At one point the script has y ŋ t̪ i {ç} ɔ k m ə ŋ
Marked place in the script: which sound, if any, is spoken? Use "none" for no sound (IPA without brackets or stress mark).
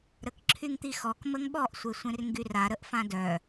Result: x